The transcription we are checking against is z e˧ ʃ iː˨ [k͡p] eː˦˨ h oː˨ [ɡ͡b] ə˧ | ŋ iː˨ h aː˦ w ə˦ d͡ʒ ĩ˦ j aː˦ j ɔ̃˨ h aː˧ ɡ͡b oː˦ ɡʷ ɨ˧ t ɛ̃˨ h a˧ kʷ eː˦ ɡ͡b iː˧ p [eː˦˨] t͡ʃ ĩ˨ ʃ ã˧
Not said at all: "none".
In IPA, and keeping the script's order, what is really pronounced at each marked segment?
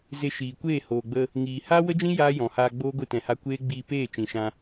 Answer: kʷ, ɡ͡b, eː˦˨

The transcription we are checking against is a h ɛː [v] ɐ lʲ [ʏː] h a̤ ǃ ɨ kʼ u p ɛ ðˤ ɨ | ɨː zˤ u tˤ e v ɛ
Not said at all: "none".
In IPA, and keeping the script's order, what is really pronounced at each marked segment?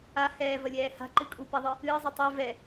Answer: v, ɛː

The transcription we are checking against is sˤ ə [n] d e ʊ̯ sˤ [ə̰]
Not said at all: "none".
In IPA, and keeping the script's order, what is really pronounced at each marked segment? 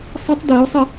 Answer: tˤ, ə

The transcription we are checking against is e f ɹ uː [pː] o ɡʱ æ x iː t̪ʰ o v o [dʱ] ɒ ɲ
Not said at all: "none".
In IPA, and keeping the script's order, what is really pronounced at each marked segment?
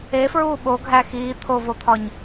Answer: ɓ, t̪ʰ

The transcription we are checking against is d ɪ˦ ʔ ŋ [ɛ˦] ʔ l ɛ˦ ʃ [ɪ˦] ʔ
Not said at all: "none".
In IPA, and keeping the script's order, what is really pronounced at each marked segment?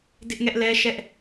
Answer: ɛ˦, ɛ˦

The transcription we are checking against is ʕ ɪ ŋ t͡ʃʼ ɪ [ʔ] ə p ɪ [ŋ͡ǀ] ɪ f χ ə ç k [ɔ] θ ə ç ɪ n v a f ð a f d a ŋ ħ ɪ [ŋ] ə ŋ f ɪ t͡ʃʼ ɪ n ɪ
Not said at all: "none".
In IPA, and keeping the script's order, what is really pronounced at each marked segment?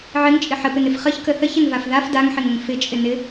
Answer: ħ, n, ə, ŋ

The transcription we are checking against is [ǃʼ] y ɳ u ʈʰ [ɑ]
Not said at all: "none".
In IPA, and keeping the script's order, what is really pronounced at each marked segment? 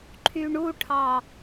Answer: ǃʰ, ɑ

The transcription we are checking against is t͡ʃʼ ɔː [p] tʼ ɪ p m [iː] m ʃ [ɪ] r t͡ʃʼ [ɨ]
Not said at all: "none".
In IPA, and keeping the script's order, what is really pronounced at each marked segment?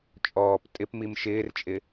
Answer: p, i, ɪː, ɪ

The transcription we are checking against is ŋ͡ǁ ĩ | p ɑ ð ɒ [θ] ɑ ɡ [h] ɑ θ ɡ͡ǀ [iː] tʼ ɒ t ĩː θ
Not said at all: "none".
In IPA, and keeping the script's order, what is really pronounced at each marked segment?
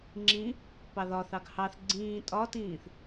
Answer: θ, h, ĩː

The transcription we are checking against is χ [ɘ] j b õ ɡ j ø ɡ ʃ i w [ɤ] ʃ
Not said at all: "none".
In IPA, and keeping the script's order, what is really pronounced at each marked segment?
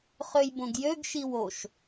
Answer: ø, o

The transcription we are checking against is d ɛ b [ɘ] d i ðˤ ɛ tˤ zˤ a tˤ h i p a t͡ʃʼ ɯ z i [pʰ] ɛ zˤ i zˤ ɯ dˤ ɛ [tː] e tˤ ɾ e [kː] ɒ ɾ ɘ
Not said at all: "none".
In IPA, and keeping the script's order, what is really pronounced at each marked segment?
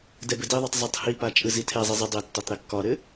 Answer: ɘ, tʰ, tː, kː

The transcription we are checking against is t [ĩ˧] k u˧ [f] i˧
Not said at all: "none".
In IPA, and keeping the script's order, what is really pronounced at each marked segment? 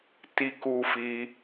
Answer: i˧, f

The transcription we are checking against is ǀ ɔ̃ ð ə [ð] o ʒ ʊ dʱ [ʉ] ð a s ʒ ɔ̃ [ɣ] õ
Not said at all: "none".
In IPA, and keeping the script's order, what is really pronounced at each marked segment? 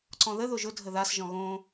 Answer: ð, ə, ɣ

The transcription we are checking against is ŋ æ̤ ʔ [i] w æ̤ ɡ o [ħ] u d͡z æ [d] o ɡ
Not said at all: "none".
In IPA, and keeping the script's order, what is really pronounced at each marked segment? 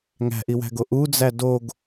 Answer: i, ʔ, d

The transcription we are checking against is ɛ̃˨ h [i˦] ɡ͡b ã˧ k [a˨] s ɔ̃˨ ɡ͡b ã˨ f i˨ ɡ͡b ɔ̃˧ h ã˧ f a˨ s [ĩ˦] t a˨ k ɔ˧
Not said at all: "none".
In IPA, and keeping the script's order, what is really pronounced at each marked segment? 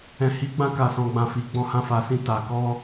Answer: i˨˦, a˨, ĩ˧

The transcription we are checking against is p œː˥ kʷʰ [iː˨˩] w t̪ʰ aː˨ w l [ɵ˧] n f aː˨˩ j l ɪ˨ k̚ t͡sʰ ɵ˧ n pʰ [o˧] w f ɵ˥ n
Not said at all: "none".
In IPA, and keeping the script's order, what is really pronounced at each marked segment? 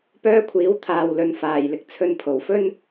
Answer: iː˨˥, ɵ˨˧, o˨˩

